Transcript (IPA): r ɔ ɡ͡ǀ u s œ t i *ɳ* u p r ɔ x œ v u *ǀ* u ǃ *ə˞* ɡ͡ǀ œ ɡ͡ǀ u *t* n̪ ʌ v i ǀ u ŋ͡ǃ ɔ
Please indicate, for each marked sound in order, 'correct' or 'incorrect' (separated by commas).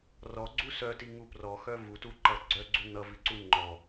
incorrect, incorrect, incorrect, incorrect